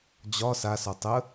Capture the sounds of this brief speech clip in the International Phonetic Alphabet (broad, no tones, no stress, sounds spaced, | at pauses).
d͡ʑ ɒ s a s ɒ tˤ ə